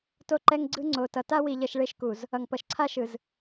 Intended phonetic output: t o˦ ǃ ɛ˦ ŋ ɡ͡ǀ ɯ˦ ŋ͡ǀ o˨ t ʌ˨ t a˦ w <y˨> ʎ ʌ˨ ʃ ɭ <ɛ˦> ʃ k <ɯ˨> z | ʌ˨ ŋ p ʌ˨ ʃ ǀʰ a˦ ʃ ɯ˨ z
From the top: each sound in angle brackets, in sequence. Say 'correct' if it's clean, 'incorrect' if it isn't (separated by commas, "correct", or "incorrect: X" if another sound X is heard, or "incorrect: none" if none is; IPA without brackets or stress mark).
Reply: incorrect: i˨, incorrect: e˦, incorrect: u˨